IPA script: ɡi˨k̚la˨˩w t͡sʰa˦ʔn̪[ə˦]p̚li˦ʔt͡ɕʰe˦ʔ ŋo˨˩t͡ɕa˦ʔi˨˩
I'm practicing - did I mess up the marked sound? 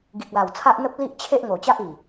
no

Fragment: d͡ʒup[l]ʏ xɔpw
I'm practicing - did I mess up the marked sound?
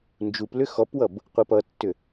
no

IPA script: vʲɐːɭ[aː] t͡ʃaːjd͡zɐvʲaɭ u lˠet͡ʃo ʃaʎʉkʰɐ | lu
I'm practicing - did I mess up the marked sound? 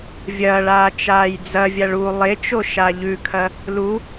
no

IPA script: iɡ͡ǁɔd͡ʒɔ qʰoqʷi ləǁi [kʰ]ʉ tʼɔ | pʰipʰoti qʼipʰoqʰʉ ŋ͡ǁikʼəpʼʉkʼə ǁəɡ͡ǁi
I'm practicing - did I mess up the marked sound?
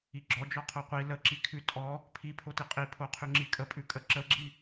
no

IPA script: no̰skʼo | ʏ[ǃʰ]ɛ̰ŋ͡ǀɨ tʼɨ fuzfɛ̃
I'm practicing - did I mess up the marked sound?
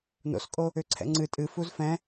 yes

